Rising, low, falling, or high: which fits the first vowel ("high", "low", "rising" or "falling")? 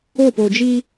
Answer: falling